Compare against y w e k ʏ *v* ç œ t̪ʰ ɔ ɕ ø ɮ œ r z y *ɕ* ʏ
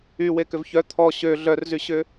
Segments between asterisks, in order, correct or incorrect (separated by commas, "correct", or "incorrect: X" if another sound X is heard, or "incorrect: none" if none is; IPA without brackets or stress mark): correct, correct